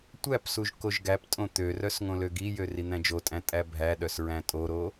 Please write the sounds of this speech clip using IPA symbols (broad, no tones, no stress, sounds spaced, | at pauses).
tʷ æ p s u ʒ k o ʒ ɡ æ p tʼ õ t̪ ø r œ s ŋ õ l ø ɡ i j ø r i n̪ æ̃ d͡ʒ o tʼ æ̃ tʼ æ bʱ æ ɗ œ s ɹ æ̃ tʼ o ɾ o